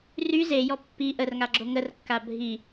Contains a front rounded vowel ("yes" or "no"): yes